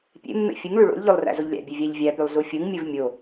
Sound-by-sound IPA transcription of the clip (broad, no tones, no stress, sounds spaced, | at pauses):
pʲ ḛ mː ḛ fʲ ɯ ŋ ɭ y ɭ o̰ lʲ ʎ o lˠ r æ̰ z o ʎ lʲ æ̰ bʲ ø vʲ æ ʎ vʲ æ p y lˠ z u fʲ ɯ ŋ mʲ ɯ v mʲ o